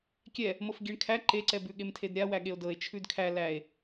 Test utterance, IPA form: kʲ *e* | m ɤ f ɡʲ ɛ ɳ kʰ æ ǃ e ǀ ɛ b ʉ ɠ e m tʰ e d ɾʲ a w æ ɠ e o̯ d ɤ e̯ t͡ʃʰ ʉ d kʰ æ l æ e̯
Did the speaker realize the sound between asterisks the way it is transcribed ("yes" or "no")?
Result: no